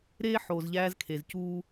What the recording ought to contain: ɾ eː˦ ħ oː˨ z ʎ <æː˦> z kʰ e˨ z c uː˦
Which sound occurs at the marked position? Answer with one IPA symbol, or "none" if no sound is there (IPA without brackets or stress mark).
æː˦